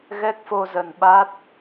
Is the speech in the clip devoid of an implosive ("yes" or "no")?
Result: no